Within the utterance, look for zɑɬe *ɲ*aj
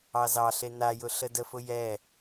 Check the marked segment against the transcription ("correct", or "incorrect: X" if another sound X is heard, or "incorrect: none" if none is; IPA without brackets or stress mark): incorrect: n